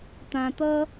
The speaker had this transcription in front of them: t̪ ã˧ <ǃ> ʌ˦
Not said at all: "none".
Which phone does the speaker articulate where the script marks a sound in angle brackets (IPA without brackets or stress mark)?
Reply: t̪